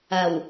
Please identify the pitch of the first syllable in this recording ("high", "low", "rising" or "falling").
low